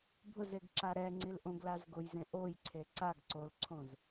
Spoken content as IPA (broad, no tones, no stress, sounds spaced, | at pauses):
bʱ ʊ z e ɡ ǁ a ɾ ɛ ŋ͡ǀ i l ʔ õ ɡ l a z ɡ o j z ẽ ʔ o j ǀʰ e ǀ a ɡ ǀ o l ǀʰ õ z